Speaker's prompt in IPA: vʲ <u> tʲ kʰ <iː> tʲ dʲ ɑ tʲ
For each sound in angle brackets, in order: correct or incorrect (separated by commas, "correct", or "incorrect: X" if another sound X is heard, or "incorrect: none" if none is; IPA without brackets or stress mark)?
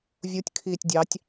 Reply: correct, correct